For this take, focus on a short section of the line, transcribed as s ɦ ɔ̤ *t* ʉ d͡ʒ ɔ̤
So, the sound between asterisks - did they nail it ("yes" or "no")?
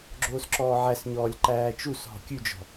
no